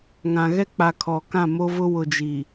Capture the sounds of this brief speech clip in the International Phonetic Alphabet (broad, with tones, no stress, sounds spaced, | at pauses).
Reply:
ŋ ã˨ ɣ ɛ˦ k͡p a˨ kʰ ɔ˨ k ã˦˨ m o˦ v ʊ˦ w ʊ˨ d͡ʒ i˨